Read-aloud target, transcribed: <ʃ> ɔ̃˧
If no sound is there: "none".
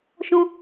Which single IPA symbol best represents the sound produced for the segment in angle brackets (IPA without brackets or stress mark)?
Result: ʃ